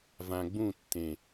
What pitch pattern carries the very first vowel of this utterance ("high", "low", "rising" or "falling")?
low